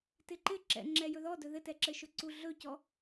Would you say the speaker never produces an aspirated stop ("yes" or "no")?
yes